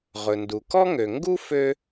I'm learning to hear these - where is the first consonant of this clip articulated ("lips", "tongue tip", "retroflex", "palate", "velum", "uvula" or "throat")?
uvula